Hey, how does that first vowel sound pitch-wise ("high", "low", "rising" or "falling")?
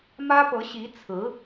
high